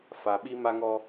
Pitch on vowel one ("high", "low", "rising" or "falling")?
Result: low